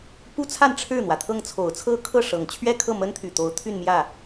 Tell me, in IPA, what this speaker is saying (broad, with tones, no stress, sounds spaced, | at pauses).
p u˥ t͡sʰ a˥˧ n ʈ͡ʂʰ ɻ̩˥˩ n̪ w ä˩ t̪ʰ ɤ˥˩ ŋ t͡sʰ o˨˩ ʊ̯ t͡sʰ ɤ˥ kʰ ɤ˥˩ ʂ ɤ˨˩ ŋ t͡ɕʰ ɥ ɛ˥˧ kʰ ɤ˥˩ m ə˥ n t̪ʰ y˨˩ t̪ o˧˥ ʊ̯ t̪ʰ y˥˧ n m j ä˥˩